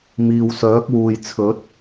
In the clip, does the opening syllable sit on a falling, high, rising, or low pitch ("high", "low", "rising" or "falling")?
low